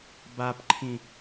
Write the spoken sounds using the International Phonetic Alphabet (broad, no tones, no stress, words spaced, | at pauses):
bapǃʰĩ